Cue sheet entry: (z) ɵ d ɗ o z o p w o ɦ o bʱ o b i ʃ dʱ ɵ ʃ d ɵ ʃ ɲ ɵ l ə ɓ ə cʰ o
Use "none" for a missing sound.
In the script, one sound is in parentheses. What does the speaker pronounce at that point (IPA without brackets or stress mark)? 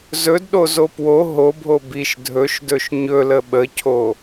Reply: z